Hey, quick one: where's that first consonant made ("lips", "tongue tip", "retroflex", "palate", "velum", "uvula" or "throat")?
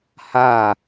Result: throat